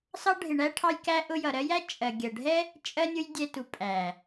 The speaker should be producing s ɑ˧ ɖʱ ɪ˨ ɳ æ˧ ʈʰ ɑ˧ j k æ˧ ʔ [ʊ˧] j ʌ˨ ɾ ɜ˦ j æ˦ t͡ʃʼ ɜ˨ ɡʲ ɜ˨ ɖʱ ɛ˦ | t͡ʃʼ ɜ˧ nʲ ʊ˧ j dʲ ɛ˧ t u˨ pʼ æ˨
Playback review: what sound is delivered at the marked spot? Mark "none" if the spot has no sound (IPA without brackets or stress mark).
ʊ˧